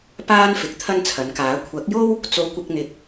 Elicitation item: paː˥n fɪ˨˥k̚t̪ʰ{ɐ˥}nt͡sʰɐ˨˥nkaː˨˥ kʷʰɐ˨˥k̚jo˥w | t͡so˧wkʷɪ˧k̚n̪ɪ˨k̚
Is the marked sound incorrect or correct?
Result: correct